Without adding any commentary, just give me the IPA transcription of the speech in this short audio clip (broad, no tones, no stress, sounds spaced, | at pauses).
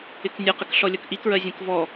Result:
ɪ k nʲ ə q ɪ k ɬ ɔ lʲ ʌ k ʔ i k ɹ ɜ zʲ ə̃ k v ɔ